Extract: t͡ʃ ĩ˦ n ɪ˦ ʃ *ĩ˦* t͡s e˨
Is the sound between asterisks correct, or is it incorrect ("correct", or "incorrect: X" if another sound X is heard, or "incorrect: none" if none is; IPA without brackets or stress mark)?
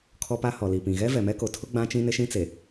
correct